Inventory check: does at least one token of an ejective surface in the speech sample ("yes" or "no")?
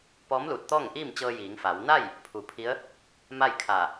no